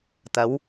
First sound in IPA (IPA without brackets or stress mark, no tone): t̪